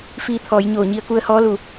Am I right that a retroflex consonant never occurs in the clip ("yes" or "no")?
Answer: yes